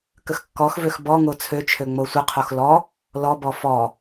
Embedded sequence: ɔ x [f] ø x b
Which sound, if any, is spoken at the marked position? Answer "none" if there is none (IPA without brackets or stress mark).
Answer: v